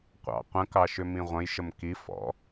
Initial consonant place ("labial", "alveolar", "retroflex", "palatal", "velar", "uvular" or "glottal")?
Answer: uvular